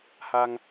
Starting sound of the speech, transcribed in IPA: h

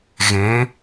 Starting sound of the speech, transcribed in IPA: ɣ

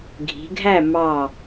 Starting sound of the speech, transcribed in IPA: ɡʱ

